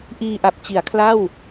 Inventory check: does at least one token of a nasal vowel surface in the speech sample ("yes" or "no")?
no